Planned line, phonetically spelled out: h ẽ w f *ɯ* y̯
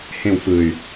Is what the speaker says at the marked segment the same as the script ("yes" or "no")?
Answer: yes